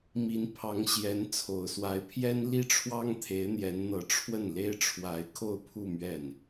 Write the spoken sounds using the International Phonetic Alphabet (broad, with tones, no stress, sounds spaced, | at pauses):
m i˧˥ n pʰ ɑ˧˥ ŋ ɕ j ɛ˧˥ n t͡sʰ o˨˩ ʊ̯ s w a˧˥ ɪ̯ pʰ j ɛ˥ n l i˥ ʈ͡ʂʰ w ɑ˥ ŋ t̪ʰ e˧˥ ɪ̯ n̪ j ɛ˧˥ n n̪ ɤ˧˥ ʈ͡ʂʰ w ə˥˩ n l e˥ ɪ̯ ʈ͡ʂʰ w a˧˥ ɪ̯ kʰ o˥˧ ʊ̯ pʰ u˥˧ m ɥ ɛ˥˩ n